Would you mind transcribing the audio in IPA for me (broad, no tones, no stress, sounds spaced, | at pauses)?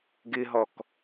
ɡ ɪ ɦ ɔ k